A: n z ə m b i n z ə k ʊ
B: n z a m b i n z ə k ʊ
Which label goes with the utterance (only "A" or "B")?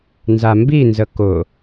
B